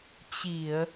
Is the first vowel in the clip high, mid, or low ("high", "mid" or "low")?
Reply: high